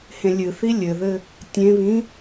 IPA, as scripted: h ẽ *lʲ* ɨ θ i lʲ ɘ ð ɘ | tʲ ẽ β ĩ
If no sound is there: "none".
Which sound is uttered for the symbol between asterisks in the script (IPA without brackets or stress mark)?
lʲ